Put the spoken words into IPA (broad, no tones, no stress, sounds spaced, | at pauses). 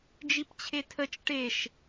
d͡ʒ i p t͡ɕʰ e tʰ ə t͡ʃ ʈ e ʃ